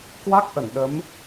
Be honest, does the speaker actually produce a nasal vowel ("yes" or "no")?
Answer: no